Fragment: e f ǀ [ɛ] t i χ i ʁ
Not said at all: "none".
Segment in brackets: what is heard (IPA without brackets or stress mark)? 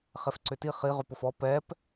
ʏ